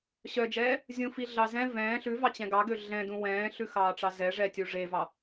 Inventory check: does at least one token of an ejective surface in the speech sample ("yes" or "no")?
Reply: no